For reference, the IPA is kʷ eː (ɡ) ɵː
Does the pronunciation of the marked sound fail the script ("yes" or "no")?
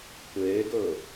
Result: no